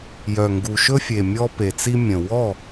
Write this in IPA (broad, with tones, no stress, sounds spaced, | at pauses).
j œ˨˩ ŋ ɡ u˨˩ ʃ ɵ˦ fʲ e˨˩ mʲ ɔ˦ p e˨˩ t͡s i˦ mʲ ə̃˨˩ w ɔ˥˩